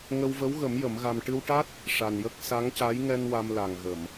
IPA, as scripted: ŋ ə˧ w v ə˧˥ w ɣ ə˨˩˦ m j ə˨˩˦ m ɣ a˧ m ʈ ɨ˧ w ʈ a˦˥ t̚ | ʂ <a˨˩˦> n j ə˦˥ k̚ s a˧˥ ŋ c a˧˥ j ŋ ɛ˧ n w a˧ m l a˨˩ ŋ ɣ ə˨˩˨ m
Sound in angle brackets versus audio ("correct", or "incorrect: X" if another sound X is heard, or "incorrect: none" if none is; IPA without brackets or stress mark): incorrect: a˨˩